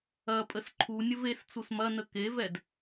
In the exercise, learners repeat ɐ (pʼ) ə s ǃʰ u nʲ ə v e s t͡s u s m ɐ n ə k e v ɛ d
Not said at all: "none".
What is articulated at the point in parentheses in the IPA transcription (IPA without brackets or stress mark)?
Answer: pʼ